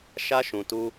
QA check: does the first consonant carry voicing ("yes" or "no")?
no